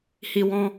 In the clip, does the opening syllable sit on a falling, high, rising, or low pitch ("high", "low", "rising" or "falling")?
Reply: high